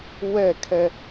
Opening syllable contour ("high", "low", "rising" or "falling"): falling